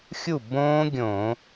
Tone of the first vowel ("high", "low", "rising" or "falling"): falling